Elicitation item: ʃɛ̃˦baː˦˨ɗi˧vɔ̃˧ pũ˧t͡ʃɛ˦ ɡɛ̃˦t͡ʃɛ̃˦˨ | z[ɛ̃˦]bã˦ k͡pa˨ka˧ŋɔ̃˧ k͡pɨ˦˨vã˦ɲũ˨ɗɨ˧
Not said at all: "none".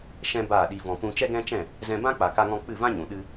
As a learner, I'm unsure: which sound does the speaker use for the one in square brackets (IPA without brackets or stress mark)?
ɛ̃˧